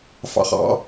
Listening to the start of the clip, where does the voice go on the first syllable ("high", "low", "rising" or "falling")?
falling